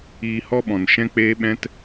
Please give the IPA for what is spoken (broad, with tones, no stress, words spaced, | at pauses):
iː˧hɔ˦ɓɔ̃˨nʃɛ̃˦ k͡peː˦ɓɛ̃˦t